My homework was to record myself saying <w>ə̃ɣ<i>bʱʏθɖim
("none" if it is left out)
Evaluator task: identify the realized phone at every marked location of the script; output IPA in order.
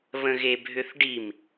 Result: β, e

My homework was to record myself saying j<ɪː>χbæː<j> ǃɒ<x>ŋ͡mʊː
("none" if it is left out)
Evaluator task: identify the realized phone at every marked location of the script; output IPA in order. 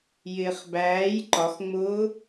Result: ɪː, j, x

